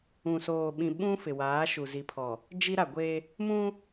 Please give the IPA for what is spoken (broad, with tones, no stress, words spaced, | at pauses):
ũ˨soː˨ɓĩ˨ɓũ˦ fɪ˨waː˨˦ʃu˨ zi˨pʰɔ˨ | d͡ʒi˦ɾa˨ɡʷe˦ | mũ˦